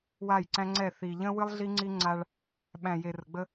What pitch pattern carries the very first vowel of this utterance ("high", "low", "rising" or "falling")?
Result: falling